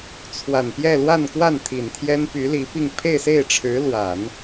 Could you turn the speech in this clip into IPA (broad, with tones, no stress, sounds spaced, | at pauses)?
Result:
t͡sʰ w a˨˩ n p j ɛ˥˧ l w a˥˧ n k w a˥˩ n t̪ʰ i˨˩ n t̪ʰ j ɛ˥ n p y˧˥ l i˧˥ p i˥˧ ŋ pʰ e˥˧ ɪ̯ s e˥˩ ɪ̯ ʈ͡ʂʰ ɻ̩˧˥ l w a˨˩˦ n